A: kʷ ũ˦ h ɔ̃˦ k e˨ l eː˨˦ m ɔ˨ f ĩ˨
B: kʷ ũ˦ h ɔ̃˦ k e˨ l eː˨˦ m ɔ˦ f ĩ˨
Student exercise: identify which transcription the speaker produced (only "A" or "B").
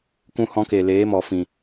A